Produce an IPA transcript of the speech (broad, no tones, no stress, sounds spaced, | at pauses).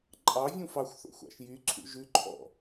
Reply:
ǃʼ ɑ vʲ ũ f ɑ xʷ θ o̰ xʷ ɑ̰ ʃ j y ǀʰ ṵ ʒ ʉ ǃʰ ɔ̰